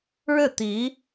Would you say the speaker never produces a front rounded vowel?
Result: yes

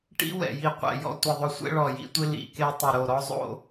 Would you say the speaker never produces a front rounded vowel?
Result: yes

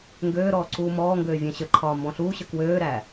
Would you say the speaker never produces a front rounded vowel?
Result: no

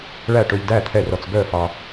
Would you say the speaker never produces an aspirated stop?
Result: no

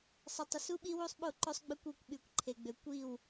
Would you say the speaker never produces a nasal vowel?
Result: yes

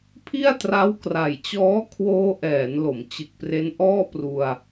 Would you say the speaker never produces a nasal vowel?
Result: yes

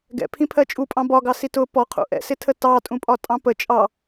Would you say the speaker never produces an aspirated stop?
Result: no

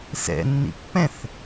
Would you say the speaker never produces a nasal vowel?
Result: no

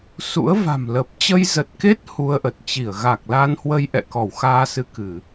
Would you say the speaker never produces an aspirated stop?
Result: yes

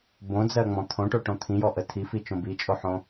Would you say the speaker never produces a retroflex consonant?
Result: no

